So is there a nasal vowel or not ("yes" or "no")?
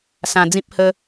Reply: yes